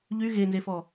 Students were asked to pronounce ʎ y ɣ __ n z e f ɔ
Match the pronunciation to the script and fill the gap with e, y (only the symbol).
e